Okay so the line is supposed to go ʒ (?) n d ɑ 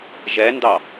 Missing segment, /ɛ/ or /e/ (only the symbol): ɛ